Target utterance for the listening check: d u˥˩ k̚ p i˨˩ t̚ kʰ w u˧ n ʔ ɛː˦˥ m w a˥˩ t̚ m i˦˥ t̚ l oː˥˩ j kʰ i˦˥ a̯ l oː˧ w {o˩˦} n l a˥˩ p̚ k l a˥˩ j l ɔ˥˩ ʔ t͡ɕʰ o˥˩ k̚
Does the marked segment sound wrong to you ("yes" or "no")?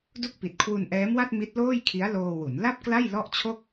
yes